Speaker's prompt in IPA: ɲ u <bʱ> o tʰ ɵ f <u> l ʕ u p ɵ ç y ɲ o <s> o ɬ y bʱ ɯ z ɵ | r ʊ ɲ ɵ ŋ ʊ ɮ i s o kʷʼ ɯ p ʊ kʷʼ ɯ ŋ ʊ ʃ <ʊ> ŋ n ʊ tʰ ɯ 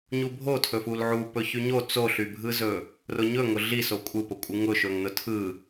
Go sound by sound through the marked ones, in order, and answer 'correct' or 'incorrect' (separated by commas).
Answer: correct, correct, incorrect, incorrect